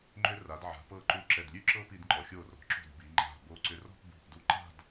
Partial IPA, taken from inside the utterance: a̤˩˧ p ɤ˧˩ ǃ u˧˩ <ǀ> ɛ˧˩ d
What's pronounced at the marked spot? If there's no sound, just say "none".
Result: ǁ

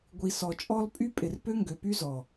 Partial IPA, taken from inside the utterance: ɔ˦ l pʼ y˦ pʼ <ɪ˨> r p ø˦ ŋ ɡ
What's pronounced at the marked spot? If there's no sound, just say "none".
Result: ɪ˨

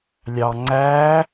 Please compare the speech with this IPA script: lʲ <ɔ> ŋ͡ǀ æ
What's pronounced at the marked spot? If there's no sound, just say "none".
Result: ɑ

